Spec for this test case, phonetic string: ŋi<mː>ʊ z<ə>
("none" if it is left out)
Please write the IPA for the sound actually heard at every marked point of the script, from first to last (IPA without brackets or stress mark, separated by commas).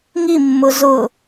mː, ʊ